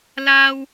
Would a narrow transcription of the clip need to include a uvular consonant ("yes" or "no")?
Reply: no